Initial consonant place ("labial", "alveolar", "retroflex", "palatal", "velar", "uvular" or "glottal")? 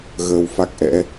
velar